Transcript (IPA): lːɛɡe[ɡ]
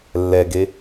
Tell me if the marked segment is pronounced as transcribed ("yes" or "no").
no